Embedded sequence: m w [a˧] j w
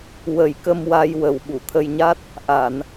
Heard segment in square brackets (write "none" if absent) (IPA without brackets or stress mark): a˧